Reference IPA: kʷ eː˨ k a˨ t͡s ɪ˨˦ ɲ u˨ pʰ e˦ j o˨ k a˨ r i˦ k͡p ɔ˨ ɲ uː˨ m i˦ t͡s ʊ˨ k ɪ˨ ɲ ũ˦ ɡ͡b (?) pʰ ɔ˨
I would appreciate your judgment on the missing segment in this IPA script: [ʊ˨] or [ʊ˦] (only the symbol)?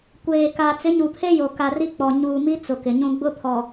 ʊ˦